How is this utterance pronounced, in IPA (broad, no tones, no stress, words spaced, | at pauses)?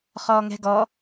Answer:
χɔːŋɛ̤ɡɔ